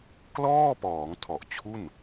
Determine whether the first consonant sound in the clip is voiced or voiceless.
voiceless